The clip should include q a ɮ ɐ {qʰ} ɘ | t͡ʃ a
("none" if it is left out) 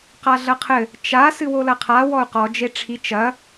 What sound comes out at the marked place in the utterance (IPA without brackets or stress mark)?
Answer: qʰ